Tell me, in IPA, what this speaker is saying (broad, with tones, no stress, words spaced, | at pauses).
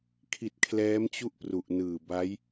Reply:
kʰi˨˩t̚ kʰlɛː˦˥mt͡ɕu˥˩ʔpru˨˩ʔ nɯː˨˩ba˦˥j